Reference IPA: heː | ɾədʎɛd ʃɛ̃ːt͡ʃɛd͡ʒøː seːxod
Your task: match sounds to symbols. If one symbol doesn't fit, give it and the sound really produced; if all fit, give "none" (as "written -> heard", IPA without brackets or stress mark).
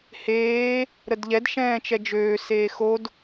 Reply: none